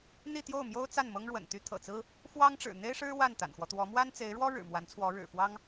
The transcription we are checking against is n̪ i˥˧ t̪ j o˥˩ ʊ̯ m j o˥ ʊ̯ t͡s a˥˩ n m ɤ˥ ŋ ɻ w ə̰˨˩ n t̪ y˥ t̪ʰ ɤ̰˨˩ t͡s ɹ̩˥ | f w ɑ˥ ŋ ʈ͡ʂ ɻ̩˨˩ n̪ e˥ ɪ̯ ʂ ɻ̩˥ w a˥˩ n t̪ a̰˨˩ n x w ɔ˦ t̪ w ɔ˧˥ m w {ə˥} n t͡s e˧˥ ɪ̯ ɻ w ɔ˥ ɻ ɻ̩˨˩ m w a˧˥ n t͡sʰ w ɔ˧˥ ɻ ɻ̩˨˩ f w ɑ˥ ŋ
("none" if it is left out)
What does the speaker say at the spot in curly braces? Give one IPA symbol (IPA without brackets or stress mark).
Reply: a˥